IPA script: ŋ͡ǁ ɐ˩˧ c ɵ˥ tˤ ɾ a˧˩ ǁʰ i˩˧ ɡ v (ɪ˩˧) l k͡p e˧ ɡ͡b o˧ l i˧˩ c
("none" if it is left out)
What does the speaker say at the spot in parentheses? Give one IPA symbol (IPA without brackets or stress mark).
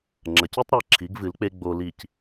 ɨ˩˧